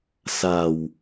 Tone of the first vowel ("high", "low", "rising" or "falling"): low